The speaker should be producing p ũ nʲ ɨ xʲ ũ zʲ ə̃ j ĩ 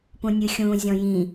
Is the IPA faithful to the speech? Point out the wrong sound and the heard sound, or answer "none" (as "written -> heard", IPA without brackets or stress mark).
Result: ə̃ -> ɔ̃